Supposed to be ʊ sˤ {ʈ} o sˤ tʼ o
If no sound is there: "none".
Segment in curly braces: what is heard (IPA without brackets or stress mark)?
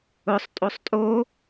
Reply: tʼ